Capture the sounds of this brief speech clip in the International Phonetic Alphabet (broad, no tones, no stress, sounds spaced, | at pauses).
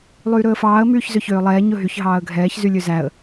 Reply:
lˠ yː ɾ ɵ ə̯ f ɑː ə̯ m yː ç z ø ç øː lˠ ɛː ɲ ɵ ɦ y ç ɦ ɑː ə̯ ɡʱ ɛː ç z y lʲ ø z æ ə̯